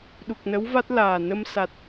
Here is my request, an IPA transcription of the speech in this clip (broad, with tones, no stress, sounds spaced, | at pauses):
ɗ u˨˩ k̚ n ə˧˥ w v a˦˥ t̚ l aː˨˩ n ə˧ m s a˨˩ t̚